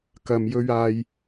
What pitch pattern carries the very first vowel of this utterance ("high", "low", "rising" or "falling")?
low